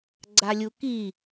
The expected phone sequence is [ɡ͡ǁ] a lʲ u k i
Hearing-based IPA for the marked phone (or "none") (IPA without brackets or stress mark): ɡ͡ǀ